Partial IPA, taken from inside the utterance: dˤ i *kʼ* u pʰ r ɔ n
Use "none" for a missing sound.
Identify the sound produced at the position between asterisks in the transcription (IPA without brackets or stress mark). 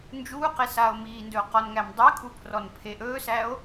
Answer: kʼ